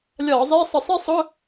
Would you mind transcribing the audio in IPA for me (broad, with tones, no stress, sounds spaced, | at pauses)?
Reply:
lʲ ɒː˧˩˧ zˤ iː˧˥˧ sˤ ə˧˩˧ sˤ ɛ˥ sˤ ʊ˧˥˧